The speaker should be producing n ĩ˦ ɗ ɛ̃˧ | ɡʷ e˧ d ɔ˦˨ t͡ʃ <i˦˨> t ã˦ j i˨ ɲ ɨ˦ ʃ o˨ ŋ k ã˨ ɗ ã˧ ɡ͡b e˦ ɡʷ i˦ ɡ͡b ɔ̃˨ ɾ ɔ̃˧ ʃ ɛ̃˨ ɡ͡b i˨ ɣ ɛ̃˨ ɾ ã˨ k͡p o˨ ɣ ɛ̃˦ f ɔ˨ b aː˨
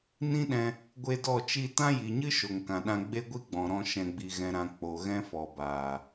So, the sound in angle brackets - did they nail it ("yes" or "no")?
yes